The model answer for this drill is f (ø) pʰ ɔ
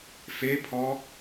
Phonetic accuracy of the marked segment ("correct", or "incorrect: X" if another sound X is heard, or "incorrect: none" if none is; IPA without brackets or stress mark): incorrect: e